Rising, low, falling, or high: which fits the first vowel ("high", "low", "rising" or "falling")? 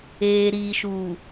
low